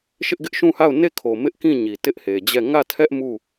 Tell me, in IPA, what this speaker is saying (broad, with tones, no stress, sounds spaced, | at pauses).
ʃ ɪ˦ ʔ ɡ ɪ˦ ʔ ʃ ũ˦˨ h a˦˨ ʊ̯ n e˦˨ kʰ o˨ m ɪ˦ ʔ k ĩ˦˨ ɲ i˨ t ɪ˦ ʔ h e˨ d͡ʑ ɛ˦˨ ŋ ä˦˨ tʰ ɛ˦ ʔ m u˦˨